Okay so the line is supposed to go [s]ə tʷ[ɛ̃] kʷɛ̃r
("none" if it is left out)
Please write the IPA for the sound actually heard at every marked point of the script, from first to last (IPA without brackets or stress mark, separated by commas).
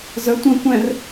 z, ə̃